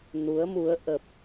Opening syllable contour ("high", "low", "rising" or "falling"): rising